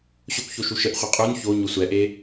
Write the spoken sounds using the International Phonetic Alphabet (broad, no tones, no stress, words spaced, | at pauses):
ɕokʷço ʃuʃəʔχʷi qʼun ço ɲosʷɛʔe